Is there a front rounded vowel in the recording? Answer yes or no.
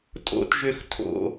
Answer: yes